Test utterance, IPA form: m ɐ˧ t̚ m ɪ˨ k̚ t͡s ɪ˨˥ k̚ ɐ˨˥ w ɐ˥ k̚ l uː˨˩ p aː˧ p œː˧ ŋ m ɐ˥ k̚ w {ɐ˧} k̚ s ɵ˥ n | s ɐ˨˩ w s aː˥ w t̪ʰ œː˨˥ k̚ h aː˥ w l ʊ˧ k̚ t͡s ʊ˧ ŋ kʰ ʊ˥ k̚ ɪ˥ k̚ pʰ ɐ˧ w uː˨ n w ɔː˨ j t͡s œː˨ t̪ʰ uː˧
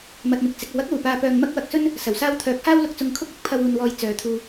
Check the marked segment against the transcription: correct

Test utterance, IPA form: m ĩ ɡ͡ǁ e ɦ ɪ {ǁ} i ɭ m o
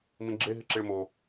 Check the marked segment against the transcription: correct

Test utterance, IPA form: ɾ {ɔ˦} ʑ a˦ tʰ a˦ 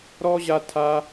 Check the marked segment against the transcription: correct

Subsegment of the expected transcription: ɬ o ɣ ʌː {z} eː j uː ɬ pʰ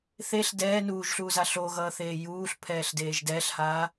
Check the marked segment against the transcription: incorrect: θ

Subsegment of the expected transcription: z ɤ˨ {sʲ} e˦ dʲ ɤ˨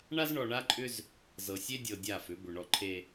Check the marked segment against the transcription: correct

